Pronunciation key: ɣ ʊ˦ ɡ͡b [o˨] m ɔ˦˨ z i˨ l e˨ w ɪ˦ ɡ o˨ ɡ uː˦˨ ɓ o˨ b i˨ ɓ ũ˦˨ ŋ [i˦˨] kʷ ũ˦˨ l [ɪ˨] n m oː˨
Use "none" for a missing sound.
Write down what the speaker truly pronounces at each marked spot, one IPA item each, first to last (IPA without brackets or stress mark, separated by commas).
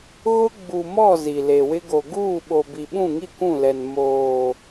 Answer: u˨, i˦˨, ɛ˨